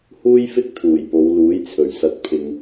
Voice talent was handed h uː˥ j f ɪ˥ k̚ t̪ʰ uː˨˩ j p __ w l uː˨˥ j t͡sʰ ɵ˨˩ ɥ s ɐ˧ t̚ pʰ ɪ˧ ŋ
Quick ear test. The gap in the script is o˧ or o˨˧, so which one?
o˨˧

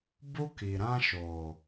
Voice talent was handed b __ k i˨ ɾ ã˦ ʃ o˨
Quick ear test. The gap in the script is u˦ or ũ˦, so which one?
u˦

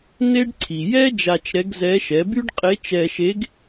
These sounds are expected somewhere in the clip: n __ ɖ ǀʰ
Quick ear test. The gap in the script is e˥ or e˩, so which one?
e˥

